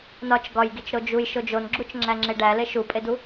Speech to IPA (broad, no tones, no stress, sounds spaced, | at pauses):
n ɒ t͡ʃ ɡ ɒ j ɡ i t͡ʃ ɾ o d͡ʒ u j ʃ o d͡ʒ o n ɡ͡ǁ u t͡ʃ ŋ͡ǁ æ ŋ͡ǁ e ɖ æ l e ʃ u pʼ e d u